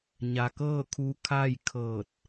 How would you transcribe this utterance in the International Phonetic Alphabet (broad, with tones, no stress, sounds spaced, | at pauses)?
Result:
ɲ a˩ k ɤː˥˨ kʰ u˧ kʰ a˥˨ j kʰ ɤː˧˩ t̚